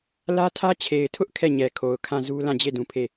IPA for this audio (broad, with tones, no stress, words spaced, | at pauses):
lä˦tʰä˦ t͡ɕʰe˨ɪ̯tʰʊ˦ʔ kʰɛ˦˨ɲɛ˨kʰo˨ʊ̯ kʰã˦˨zu˦ lã˦˨d͡ʑe˦˨ dũ˨pʰe˦˨